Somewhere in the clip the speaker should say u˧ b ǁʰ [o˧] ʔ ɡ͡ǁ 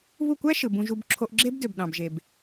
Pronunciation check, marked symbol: correct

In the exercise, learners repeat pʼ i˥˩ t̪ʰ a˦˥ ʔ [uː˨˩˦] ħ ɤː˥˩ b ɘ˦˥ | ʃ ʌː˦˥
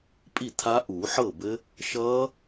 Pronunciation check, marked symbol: correct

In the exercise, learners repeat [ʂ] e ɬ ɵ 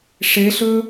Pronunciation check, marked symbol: correct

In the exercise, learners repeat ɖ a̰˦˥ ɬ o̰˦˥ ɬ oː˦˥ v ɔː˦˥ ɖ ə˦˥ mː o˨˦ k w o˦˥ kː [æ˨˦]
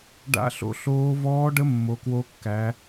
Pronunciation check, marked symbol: correct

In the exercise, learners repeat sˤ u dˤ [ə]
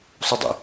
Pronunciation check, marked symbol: incorrect: ə̰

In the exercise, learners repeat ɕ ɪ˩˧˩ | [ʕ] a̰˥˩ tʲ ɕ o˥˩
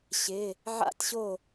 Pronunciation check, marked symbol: correct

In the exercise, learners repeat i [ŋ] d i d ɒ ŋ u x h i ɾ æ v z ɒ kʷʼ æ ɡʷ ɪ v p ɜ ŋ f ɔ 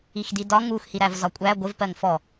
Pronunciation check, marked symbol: incorrect: x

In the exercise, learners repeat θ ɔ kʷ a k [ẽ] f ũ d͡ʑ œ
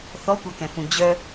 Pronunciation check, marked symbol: incorrect: ɛ̃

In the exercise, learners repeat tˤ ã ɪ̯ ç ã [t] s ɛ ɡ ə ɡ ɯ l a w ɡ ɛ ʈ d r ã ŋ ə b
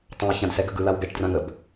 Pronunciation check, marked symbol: incorrect: d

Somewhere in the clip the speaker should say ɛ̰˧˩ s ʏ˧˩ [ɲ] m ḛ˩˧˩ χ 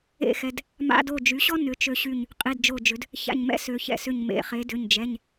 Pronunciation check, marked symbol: correct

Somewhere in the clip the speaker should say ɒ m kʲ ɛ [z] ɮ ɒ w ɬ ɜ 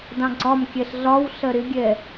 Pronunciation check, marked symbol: incorrect: ɬ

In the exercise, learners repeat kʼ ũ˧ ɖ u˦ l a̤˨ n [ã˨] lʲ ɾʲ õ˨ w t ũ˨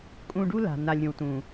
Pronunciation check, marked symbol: incorrect: a˨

